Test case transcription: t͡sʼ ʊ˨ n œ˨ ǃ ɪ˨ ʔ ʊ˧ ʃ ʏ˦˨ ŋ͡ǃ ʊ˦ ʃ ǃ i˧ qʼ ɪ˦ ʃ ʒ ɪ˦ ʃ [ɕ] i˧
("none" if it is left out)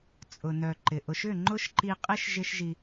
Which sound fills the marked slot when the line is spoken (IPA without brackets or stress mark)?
ʒ